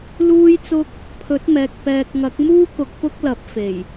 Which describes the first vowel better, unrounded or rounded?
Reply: rounded